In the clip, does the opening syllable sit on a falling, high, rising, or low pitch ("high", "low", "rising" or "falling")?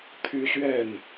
high